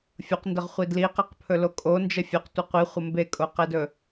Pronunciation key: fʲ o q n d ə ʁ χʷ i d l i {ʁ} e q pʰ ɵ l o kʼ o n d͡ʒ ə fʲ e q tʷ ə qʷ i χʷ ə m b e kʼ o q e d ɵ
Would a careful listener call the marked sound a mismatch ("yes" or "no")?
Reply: yes